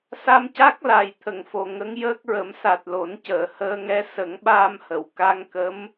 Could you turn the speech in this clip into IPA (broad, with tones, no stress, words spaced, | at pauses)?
sa˧mca˦˥k̚ la˨˩j t̪ʰə˨˩˨ŋfo˨˩ ŋə˧˥ŋjəː˦˥k̚ɹə˨˩˦m sa˨˩t̚lo˨˩˦ncəː˨˩˨ həː˧ŋɛ˧˥ sə˨˩˦ŋɓaː˧mhə˨˩˨w ka˧ŋkə˧˥m